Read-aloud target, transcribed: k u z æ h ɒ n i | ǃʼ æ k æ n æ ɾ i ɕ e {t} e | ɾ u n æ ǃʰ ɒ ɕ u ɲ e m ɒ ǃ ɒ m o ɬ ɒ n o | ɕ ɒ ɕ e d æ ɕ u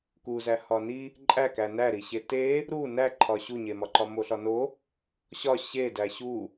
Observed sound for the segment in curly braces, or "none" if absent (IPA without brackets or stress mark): t